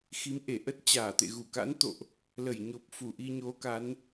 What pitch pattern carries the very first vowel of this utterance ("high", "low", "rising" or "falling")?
rising